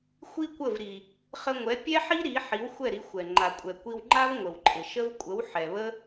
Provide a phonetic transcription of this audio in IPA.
xʷ i˥ kʷ ə˥˩ v ɾ i˩ | χ ə˧ ŋʷ ɛ˩˥ pʲ ɛ˥ ħ i˥ ɾ i˩˥ ħ i˩˥ w xʷ ɛ˥˩ ɾ i˩˥ xʷ ɛ˩ ŋ͡ǃ a˩ kʷʼ ɛ˩ kʷ i˧ w ŋ͡ǃ a˥ v ŋʷ ə˩ w ǃʼ ɪ˩ ʃ ə˥ v kʷʼ ə˩˥ w ħ ɛ˩ β ə˥

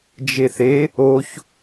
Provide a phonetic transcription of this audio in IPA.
d͡ʒ e θ e | o ç

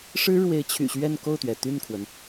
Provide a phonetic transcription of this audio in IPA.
ʂ ɻ̩˥ ɻ w e˧˥ ɪ̯ t͡ɕʰ y̰˨˩ ɕ ɥ ɛ˥˧ n k o˥˩ ʊ̯ t̪ ɥ ɛ˩ t̪ y˥˩ n kʰ w ə˩ n

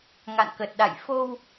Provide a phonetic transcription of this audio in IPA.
ŋ a̰˧˨ n k ə˨˩ t̚ ɗ a̰˧˨ j f o˧ w

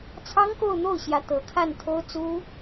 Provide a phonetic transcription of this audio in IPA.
t͡sʰ ɑ˥ ŋ k o˥˧ ʊ̯ n̪ o˥˩ ʊ̯ ɕ j ä˧˥ t̪ ɤ˧˥ kʰ a˥˩ n t̪ʰ o˥ ʊ̯ t͡s u˥

